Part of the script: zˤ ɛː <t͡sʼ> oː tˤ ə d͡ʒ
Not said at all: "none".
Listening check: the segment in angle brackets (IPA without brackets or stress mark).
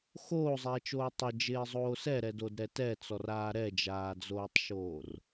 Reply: t͡ʃ